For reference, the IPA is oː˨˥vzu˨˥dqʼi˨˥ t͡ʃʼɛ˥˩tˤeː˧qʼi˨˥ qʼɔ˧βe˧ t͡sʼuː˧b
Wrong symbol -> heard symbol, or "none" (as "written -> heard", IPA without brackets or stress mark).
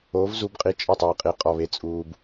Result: d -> b